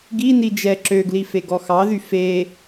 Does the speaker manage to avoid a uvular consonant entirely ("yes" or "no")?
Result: yes